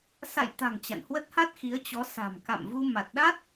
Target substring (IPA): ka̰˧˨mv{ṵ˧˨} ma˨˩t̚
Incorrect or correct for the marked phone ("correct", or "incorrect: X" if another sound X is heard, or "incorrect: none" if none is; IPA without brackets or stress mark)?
incorrect: u˧